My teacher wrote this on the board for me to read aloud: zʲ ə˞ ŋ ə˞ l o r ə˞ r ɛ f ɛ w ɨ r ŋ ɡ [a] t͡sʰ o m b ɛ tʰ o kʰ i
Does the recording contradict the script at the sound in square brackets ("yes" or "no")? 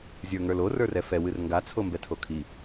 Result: no